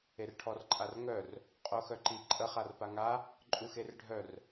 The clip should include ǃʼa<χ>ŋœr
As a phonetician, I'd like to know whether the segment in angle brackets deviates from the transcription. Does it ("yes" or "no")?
yes